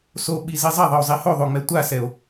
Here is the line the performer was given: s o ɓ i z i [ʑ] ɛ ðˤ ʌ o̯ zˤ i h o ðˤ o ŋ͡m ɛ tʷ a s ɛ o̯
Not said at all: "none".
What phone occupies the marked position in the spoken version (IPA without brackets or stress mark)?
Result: zˤ